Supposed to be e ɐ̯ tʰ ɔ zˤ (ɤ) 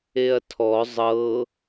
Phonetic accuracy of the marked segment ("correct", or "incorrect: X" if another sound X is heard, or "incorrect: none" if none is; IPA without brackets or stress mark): correct